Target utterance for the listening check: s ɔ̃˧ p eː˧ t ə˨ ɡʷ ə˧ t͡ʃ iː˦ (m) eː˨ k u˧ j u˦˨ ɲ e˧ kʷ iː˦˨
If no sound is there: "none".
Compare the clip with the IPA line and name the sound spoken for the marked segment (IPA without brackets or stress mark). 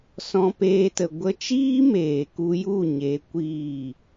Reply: m